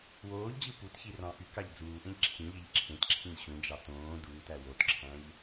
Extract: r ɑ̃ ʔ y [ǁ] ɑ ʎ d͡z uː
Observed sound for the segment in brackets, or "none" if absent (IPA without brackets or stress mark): k